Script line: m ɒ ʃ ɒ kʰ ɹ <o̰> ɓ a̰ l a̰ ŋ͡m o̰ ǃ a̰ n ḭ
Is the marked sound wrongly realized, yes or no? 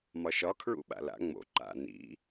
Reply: yes